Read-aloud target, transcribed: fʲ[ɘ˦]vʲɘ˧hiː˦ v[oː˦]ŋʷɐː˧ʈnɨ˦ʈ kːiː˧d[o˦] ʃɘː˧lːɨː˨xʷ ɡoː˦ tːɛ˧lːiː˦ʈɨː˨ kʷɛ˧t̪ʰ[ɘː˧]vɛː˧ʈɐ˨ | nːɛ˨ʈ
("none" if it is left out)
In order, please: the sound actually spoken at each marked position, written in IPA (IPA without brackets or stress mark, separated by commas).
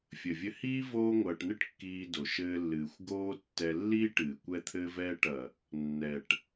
ɘ˨, oː˦, o˨, ɘː˧